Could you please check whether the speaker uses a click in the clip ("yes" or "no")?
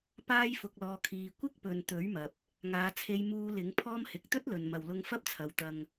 no